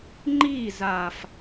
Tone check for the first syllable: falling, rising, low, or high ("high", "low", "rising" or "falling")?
falling